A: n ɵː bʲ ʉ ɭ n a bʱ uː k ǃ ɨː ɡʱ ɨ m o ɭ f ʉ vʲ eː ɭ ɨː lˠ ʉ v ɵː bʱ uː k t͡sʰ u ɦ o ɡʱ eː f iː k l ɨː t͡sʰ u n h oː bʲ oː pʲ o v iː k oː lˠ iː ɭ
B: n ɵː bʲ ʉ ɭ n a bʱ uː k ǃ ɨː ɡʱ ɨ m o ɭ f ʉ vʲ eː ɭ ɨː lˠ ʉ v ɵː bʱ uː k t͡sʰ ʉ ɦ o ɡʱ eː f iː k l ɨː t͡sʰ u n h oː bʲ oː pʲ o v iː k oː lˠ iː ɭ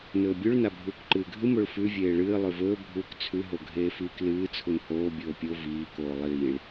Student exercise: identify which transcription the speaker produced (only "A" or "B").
B